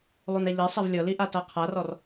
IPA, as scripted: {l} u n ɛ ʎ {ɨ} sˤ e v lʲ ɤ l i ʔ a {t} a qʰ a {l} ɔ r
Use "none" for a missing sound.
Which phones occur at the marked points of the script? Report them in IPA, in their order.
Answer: lˠ, ɛ, t, r

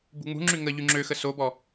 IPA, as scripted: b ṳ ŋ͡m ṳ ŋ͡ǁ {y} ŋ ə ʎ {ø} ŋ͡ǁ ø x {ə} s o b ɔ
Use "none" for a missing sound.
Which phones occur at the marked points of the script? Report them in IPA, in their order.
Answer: y, y, ə

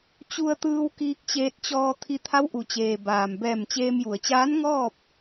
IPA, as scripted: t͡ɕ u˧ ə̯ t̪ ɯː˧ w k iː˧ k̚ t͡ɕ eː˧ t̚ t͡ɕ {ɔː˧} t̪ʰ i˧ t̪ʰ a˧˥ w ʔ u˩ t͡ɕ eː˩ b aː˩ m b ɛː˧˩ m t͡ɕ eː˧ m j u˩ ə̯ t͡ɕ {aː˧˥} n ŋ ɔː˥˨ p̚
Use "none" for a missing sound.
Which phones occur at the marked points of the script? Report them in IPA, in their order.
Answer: ɔː˧, aː˧˥

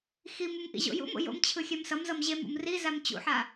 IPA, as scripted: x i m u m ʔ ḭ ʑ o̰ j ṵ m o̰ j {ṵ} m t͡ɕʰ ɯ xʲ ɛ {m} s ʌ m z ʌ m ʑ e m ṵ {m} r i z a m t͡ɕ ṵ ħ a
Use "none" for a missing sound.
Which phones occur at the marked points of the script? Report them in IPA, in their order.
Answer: o̰, m, m

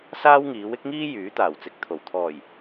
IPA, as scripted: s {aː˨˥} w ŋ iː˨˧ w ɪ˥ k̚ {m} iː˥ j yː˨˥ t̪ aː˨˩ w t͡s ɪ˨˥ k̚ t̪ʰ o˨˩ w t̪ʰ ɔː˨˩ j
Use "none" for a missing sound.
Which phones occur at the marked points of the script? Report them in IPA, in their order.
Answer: aː˥, ŋ

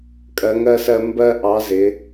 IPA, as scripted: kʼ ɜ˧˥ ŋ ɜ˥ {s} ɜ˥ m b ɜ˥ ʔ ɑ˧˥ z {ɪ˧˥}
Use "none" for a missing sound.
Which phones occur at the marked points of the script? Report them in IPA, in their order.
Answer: s, ɪ˧˥

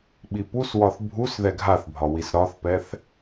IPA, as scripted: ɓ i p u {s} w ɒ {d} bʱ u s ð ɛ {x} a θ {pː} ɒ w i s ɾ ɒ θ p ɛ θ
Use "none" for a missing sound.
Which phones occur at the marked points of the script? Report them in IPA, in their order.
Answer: s, θ, ɡʱ, bʱ

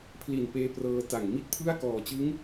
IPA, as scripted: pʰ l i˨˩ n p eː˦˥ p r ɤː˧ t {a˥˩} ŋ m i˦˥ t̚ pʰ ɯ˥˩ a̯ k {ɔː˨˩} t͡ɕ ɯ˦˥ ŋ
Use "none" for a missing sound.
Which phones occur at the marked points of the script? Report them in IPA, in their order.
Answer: a˨˩, ɔː˨˩

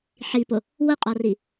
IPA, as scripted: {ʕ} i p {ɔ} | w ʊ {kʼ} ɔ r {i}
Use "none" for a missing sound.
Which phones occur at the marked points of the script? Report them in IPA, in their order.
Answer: ħ, ʊ, qʼ, i

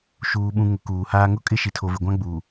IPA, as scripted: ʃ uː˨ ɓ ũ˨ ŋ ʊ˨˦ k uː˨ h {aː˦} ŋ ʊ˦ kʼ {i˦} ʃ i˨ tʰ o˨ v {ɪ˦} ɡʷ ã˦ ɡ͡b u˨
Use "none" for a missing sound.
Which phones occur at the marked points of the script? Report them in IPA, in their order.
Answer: aː˦, ɪ˦, ɪ˨

